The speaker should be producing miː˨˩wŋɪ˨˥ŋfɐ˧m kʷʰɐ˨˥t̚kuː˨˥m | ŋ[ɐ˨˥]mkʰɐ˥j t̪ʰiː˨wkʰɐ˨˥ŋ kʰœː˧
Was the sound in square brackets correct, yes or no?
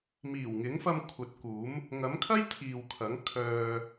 yes